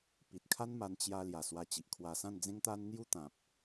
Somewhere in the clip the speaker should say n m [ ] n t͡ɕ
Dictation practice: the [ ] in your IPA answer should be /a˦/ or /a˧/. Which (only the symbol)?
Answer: a˧